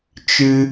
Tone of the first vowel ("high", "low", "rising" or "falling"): high